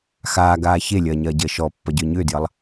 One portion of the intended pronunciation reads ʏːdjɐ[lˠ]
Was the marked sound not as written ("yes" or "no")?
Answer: no